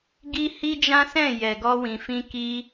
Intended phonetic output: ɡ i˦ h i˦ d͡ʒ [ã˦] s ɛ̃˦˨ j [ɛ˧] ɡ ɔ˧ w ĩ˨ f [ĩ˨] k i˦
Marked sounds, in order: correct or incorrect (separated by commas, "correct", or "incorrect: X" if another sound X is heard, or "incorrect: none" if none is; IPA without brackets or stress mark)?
correct, incorrect: ɛ˨, incorrect: ĩ˧